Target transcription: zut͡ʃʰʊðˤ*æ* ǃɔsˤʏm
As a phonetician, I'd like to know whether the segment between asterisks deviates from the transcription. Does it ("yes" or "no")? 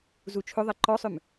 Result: yes